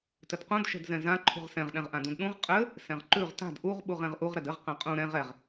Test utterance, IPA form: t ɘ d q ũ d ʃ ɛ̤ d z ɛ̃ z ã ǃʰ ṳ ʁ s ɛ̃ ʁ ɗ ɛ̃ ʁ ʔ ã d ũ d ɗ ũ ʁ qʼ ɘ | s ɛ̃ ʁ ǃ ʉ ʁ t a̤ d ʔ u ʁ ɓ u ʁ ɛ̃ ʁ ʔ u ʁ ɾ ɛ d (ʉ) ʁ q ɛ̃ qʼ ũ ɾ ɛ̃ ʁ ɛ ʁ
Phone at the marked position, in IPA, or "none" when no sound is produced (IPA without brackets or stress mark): ɘ